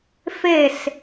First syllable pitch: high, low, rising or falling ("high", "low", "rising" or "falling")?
falling